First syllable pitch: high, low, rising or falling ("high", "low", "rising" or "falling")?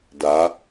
rising